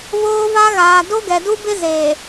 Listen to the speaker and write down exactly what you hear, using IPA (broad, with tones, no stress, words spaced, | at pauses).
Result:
βoː˦va˦ ɣaː˨ do˦ɡɛ˨ du˦bɪ˦ zeː˨